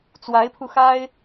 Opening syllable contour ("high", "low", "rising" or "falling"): rising